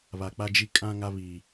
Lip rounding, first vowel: unrounded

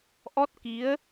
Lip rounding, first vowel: rounded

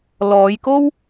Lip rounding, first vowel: rounded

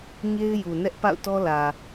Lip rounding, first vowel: unrounded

